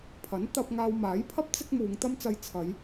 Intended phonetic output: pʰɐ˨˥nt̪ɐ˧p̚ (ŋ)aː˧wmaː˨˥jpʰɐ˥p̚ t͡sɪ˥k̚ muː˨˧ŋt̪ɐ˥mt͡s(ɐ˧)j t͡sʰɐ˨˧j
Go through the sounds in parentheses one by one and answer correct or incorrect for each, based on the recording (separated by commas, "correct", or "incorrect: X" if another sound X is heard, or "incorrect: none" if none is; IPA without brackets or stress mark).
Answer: correct, correct